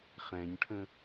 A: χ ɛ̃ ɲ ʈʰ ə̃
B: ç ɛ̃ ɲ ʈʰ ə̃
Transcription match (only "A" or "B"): A